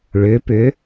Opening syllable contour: rising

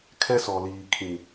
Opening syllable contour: high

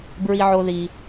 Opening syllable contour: high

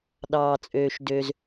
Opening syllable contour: low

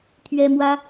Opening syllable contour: high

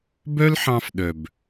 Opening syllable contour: high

